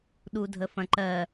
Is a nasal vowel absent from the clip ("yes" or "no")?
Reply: no